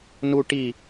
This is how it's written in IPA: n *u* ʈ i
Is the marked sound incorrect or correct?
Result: correct